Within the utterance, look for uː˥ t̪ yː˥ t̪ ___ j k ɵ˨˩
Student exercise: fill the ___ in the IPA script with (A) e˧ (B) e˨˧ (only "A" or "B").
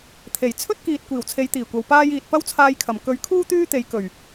B